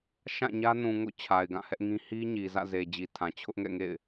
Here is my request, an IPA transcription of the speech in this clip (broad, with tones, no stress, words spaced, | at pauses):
ʃã˦˨ɲä˦ nũ˨ŋo̰˦˨ t͡ɕʰa˨ɪ̯ɡã˦˨hɛ˦ʔŋĩ˦ hi˦ɲi˨ zä̰˦˨ze˨d͡ʑi˨tʰã˨ t͡ɕʰʊ˦ʔŋɛ̰˦˨ŋḛ˦˨ɪ̯